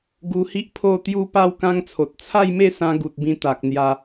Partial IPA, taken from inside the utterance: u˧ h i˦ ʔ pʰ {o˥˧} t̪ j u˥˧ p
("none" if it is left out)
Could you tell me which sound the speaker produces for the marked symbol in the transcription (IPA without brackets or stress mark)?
o˥˧